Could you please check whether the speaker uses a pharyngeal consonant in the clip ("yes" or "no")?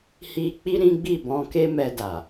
no